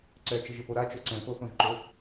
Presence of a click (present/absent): present